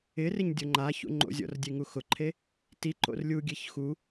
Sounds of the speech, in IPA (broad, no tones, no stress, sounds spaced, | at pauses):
ɪ r ɪ ɲ dʲ o ŋ͡ǃ a ç ṵ ŋ͡ǃ o̰ zʲ ɔ̰ r dʲ e ŋ u x ʊ ǃʰ e | t i ǃ o̰ r lʲ u ɡʲ e ç x u